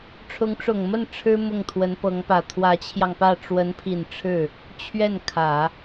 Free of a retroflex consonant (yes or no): no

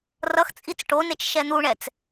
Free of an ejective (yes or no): no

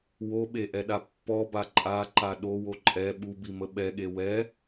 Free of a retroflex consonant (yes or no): yes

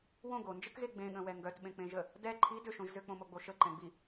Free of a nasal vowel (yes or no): no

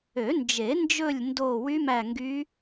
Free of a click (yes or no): yes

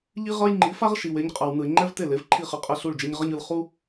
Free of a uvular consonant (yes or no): no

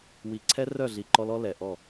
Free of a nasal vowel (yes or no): yes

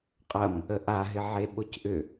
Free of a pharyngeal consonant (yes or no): no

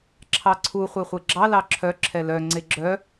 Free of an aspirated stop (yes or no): no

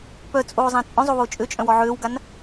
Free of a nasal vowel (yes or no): no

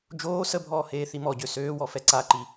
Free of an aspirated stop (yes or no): yes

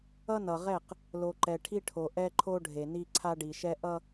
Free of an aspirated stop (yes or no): no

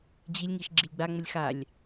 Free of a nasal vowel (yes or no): yes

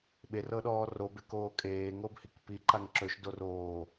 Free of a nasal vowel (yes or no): yes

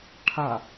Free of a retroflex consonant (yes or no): no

